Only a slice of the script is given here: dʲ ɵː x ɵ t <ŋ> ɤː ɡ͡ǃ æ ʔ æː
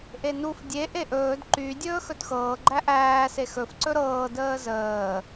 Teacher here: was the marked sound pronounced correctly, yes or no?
no